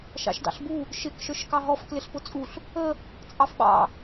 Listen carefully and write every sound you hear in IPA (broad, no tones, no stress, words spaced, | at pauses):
ʃɑ̰ʃdɑ̰ɬbu | ʃɪk ʃə˞ʃkɑɦɔf klɪɬpʊt͡sʼuɬ | ə | t͡sʼɑfɓɑ̰